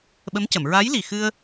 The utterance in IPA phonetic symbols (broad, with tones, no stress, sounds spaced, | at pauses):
ɓ ə˧˥ m c ə˨˩˨ m ɹ a˧˥ j l i˨˩ x ɨ˧ ə̯